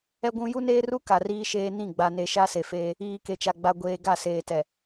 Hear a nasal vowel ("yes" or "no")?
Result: yes